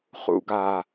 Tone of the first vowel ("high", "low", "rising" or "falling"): low